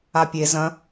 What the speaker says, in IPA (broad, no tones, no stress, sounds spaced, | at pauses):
a pʲ e z ɐ̃